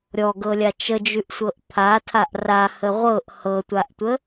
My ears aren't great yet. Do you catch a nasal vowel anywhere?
no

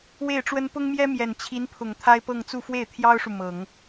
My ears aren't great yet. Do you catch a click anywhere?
no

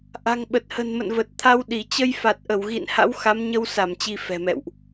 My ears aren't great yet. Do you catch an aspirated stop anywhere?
yes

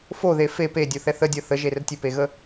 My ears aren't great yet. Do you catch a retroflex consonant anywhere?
no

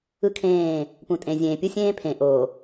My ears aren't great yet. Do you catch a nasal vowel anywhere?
yes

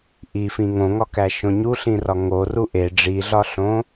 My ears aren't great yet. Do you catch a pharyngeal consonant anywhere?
no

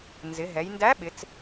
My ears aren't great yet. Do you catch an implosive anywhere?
yes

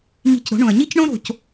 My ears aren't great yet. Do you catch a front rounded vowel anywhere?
no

